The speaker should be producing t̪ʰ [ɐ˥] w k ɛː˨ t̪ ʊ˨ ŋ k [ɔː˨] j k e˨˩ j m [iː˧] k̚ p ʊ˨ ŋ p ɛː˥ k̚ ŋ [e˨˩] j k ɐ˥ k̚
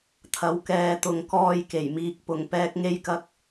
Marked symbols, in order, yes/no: no, no, yes, no

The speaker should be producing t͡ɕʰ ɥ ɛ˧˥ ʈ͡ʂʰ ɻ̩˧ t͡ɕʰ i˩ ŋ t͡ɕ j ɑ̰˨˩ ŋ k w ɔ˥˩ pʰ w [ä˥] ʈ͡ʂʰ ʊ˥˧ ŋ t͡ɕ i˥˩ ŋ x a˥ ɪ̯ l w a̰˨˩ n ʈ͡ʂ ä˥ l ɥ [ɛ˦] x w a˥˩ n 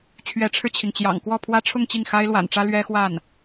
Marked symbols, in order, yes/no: yes, no

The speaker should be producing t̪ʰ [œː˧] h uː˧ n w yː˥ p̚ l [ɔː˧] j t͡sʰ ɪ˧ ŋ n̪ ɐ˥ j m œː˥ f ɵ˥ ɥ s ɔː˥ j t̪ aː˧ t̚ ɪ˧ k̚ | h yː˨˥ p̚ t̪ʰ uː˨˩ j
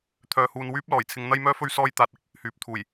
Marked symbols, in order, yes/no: yes, no

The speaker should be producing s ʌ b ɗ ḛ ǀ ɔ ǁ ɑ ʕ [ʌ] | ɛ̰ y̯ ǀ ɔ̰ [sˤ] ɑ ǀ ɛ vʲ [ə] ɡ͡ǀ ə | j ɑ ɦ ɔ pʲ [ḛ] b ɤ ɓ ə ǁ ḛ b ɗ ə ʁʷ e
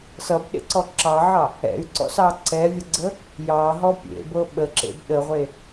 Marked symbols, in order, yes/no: no, no, yes, yes

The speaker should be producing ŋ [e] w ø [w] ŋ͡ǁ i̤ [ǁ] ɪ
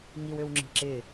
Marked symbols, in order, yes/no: no, yes, yes

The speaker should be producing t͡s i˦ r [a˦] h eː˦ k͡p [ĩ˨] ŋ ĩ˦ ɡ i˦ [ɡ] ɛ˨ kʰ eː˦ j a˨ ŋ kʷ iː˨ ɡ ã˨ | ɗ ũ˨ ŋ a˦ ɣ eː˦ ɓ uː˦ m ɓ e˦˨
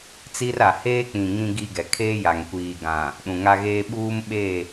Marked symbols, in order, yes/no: no, yes, yes

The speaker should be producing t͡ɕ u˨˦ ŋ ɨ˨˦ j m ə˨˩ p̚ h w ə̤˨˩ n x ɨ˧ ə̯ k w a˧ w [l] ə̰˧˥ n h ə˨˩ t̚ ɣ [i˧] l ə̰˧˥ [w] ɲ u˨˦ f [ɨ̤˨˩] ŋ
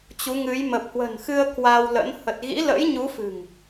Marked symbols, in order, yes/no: yes, no, no, yes

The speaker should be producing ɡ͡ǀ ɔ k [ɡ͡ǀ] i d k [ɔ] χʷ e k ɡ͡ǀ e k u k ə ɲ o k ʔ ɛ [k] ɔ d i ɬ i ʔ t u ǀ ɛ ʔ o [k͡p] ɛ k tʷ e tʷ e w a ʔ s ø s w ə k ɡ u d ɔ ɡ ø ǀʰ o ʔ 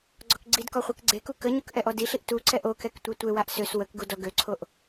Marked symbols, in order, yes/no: yes, yes, no, no

